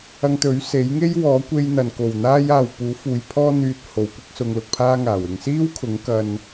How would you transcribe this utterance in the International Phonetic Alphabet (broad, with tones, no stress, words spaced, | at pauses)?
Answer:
ɐ˧ŋt̪ɵ˨˥ɥ se˨˥jŋe˥j wɔː˨˥kʷe˧j n̪ɐ˨nko˨˩wn̪aː˥j aː˨wpuː˨˥fuː˨˧j pʰɔː˥ n̪yː˧t̚ ho˨˥wkʷɪ˥k̚ sʊ˧ŋlʊ˧k̚pʰaː˥ŋaː˨˩w ɪ˨ŋsiː˥wkʰʊ˨˥ŋ kɐ˧n